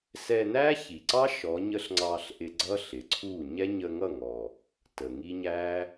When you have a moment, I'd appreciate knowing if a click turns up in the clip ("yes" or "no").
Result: yes